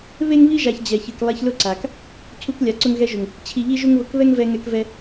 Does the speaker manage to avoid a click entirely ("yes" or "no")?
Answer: no